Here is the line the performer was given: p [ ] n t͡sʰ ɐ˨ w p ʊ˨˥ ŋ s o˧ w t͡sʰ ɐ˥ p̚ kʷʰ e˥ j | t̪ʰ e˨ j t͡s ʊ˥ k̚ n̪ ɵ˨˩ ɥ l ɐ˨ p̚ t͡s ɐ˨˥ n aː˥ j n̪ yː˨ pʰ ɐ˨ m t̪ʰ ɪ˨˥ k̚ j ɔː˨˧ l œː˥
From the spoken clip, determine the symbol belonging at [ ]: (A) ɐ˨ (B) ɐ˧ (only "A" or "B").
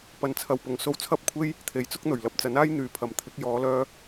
A